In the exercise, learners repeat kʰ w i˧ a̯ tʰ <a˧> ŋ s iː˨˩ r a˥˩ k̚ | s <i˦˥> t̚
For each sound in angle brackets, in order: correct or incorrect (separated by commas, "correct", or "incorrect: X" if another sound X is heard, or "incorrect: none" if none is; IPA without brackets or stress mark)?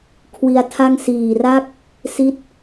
incorrect: a˥˩, correct